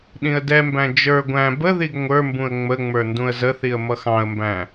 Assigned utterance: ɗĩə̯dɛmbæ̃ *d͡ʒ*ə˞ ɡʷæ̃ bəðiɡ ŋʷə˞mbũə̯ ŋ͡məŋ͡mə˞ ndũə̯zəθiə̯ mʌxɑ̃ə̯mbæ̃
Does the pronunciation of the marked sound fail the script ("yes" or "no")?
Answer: no